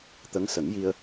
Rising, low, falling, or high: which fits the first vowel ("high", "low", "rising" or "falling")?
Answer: rising